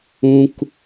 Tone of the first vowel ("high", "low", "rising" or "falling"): high